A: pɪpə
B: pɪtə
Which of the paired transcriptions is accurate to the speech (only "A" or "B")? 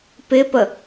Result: A